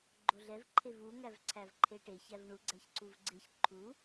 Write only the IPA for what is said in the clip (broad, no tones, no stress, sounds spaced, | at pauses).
ɡ͡ǃ o ɮ ɛ v ǃʰ e v u ŋ æ v ǀʰ æ v ǃʰ e ʈ e ç æ v ɳ u ɡ͡ǀ æ ç ǀ u v ɡ͡ǀ e ç ǃʰ u